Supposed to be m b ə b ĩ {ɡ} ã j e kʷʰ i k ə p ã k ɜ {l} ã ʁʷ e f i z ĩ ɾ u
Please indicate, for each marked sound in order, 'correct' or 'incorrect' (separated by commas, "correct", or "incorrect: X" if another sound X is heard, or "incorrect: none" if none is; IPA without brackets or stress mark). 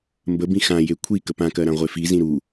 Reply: incorrect: x, incorrect: ɾ